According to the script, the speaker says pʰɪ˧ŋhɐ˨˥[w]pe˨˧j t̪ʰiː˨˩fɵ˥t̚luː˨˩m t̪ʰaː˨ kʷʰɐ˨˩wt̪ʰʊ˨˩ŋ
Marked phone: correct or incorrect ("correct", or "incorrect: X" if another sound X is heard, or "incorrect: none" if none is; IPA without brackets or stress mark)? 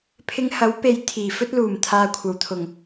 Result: correct